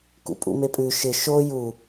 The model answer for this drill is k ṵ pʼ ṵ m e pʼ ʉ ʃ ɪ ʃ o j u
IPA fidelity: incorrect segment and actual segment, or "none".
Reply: none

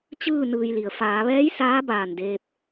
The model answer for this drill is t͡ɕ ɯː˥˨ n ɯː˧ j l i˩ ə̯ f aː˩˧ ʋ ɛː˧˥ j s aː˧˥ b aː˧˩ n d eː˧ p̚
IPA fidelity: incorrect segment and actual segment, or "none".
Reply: none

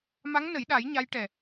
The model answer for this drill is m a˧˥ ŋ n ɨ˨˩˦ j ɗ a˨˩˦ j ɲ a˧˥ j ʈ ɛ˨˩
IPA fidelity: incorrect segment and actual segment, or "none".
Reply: ɨ˨˩˦ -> ə˨˩˦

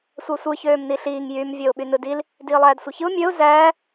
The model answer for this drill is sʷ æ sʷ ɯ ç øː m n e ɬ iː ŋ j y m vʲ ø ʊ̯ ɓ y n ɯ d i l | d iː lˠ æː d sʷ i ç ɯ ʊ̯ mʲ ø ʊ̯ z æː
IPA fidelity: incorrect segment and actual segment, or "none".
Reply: e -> i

